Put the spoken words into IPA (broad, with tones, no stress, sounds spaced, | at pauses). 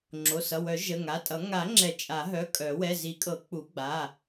ŋ͡ǁ o˩˧˩ s ʌ˩˧˩ w œ˨˩˦ ʒ ə˩˧˩ ŋ a˩˧˩ tʼ ʌ˨˩˦ ŋ a˨˩˦ ŋ͡ǁ ɛ˨˩˦ t͡ʃʼ a˨˩˦ ɦ œ˩˧˩ kʼ œ˨˩˦ w ɛ˩˧˩ z i˨˩˦ kʼ ɤ˨˩˦ k͡p u˨˩˦ ɡ͡b a˩˧˩